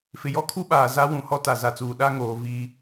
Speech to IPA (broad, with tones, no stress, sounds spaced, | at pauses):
f ɪ˨ j ɔ˦ kʰ u˦ ɓ aː˨ z a˦ w ũ˨ h ɔ˦ t a˨ z a˨ t͡s uː˨ ɗ a˦ ŋ oː˨ v i˦